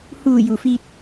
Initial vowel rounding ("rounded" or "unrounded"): rounded